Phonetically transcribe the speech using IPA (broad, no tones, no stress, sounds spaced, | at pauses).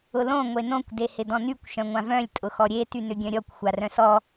ʊ l õ ŋʷ e n õ kʷ d e h ɪ d ɔ̃ n y kʷ ʃ œ̃ ŋʷ ã v œ̃ lʲ tʼ ʊ x ɔ ɾʲ e t y n ʏ ɡʲ œ̃ ɾʲ ɔ kʷ xʷ a r œ̃ s ɔ